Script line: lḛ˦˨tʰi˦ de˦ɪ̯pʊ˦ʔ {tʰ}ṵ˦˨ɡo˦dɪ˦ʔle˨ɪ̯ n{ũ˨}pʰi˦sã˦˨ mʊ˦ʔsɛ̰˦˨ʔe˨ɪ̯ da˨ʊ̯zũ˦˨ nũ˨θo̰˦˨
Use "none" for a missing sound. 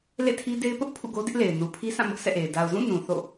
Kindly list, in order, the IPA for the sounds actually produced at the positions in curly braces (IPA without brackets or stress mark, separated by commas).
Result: pʰ, u˨